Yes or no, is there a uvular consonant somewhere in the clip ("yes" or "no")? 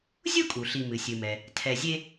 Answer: no